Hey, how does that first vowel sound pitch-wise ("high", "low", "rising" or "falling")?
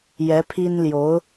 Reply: rising